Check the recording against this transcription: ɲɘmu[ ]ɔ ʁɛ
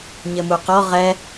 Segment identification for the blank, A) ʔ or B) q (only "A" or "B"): B